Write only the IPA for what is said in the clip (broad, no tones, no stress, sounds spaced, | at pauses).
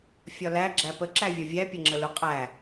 fʲ ɒ l æ ɡ͡ǁ æ p ə ǁ æ vʲ ɒ vʲ æ pʲ ʌ ŋ͡ǁ ə l ʊ qʼ æ